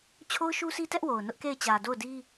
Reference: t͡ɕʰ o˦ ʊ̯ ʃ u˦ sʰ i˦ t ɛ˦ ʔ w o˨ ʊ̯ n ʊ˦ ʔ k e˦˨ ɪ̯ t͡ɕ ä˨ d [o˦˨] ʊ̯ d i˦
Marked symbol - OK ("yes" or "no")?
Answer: yes